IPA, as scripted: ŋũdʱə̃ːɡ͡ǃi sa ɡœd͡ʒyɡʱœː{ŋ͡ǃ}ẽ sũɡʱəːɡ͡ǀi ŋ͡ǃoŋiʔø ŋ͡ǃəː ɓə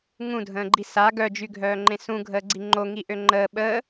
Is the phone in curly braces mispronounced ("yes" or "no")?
no